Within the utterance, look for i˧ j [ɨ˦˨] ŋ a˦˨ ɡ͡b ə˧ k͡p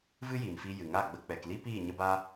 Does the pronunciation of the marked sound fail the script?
yes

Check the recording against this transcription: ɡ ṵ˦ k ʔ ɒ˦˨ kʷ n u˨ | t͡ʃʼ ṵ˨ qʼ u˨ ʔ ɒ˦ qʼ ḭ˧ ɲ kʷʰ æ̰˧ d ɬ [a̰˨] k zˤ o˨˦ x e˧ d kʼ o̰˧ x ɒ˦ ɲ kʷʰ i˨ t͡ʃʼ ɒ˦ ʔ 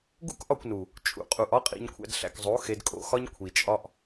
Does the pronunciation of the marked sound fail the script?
yes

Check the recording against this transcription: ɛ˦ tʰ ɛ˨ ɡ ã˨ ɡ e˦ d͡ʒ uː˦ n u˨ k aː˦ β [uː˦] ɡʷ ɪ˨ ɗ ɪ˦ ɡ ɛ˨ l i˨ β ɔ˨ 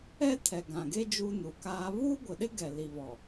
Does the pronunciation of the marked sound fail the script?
no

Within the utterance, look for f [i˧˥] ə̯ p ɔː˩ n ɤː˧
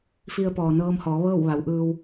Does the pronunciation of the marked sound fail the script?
yes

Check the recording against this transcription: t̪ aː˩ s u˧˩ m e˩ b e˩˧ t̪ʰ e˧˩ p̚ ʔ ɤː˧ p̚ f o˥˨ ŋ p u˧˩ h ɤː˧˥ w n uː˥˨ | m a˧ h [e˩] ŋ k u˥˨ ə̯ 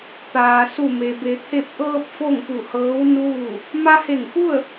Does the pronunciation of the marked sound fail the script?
yes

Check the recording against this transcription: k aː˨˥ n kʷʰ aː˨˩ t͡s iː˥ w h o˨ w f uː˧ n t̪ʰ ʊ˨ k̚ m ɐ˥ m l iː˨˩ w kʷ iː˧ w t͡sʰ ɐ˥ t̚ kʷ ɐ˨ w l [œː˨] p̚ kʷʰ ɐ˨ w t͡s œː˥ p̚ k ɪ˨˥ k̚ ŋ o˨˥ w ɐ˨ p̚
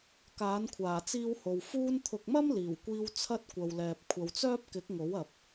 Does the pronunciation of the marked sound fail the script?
yes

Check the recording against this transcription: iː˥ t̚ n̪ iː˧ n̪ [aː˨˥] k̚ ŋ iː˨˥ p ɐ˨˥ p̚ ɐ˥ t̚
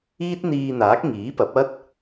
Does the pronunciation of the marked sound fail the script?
no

